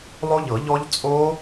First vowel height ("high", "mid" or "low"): mid